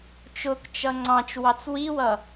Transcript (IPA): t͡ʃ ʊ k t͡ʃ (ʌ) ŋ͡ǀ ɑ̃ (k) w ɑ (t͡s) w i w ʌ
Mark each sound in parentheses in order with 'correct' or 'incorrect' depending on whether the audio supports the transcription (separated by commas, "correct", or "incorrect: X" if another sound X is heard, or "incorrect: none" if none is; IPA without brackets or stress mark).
correct, incorrect: t͡ʃ, correct